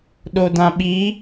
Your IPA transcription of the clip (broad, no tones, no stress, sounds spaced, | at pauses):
ɗ o d ã ɓ i